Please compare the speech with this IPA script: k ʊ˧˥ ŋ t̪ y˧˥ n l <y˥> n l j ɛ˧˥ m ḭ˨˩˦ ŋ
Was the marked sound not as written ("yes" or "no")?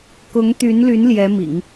yes